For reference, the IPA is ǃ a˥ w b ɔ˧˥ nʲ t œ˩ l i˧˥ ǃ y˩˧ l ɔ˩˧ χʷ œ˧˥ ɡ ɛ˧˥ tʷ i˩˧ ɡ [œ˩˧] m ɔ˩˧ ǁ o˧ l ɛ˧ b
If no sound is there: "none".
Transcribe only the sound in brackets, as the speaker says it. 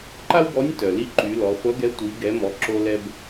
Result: ɛ˩˧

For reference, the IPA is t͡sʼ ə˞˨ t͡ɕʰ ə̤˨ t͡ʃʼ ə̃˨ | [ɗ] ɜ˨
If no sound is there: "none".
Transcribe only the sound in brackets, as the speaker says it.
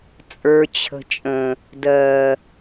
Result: d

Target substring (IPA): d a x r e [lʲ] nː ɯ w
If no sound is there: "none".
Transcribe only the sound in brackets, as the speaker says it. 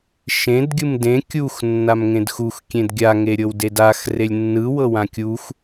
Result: lʲ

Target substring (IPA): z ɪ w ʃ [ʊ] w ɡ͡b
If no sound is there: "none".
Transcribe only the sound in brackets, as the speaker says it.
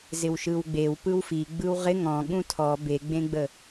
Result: ɯ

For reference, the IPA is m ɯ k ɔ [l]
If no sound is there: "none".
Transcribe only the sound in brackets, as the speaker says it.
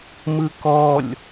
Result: lʲ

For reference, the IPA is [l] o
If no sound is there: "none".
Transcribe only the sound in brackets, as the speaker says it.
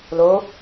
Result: l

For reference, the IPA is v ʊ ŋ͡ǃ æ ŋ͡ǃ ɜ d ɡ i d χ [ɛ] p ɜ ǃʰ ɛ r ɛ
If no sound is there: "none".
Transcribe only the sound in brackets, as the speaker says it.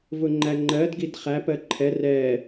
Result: æ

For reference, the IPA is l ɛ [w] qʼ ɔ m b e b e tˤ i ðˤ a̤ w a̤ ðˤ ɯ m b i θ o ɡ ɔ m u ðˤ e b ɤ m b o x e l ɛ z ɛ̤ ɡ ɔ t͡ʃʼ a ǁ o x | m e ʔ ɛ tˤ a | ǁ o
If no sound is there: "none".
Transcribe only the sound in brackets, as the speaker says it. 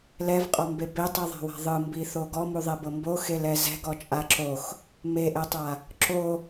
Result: v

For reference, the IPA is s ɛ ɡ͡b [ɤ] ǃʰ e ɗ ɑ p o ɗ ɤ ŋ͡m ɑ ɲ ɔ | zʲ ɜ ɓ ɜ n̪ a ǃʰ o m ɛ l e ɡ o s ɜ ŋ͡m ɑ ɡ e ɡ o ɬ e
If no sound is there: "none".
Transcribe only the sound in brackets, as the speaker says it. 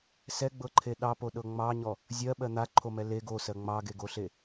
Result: ɤ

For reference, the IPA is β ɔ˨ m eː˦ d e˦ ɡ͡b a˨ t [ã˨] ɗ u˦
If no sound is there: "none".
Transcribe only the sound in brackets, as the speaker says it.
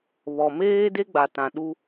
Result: ã˨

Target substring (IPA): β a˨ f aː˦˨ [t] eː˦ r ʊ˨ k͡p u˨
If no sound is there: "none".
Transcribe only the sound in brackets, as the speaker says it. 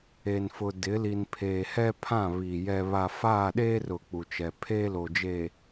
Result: ɗ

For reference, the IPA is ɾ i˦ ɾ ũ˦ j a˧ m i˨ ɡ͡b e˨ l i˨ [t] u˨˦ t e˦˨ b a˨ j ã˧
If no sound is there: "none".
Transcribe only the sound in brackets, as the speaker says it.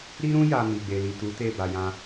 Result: t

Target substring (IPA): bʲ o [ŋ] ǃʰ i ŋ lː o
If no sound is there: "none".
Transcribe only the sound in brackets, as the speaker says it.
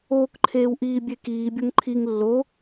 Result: ŋ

